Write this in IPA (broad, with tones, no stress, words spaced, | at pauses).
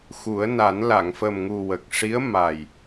xu˨˩˦ə̯na˨˩˦n la˨˩˨ŋfə˨˩mŋu˨˩ wə˨˩k̚ʂi˧˥ə̯ma˨˩j